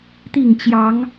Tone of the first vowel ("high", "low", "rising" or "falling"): falling